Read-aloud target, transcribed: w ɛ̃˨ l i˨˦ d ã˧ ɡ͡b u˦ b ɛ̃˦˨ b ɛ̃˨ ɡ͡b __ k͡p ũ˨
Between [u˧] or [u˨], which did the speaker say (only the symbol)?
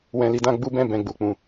u˨